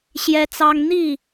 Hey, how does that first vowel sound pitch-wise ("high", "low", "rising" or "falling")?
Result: high